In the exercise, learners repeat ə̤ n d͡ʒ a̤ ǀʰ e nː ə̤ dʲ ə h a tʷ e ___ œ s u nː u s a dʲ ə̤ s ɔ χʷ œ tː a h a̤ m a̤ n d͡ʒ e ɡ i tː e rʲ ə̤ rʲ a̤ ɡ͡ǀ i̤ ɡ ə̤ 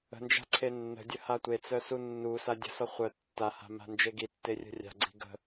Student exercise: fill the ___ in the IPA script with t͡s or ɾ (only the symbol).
t͡s